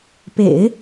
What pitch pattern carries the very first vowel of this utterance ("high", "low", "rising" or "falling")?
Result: low